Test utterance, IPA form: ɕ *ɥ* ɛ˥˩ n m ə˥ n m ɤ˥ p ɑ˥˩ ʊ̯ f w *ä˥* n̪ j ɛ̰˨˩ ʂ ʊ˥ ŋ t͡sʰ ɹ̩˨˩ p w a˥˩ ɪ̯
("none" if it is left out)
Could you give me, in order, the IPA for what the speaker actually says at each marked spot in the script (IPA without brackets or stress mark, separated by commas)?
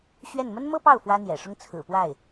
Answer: ɥ, ä˥